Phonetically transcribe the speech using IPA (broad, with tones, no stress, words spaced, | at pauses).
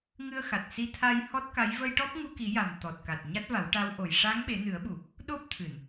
ŋɨ˧ə̯xa˨˩t̚ si˧t̪ʰa˧j hɔ˦˥t̚ka˧˥j və˧jʈɔ˦˥p̚ŋu˧ki˨˩˦ ja˨˩m t̪ɔ˨˩t̚ka˨˩t̚ ɲa˦˥t̚va˨˩˦wʈa˧˥w ʔo˨˩j ʂa˧˥ŋɓe˨˩˦ nɨ˨˩˦ə̯ɓu˨˩˨ | ɗo˦˥p̚t̪ʰɨ˨˩˨n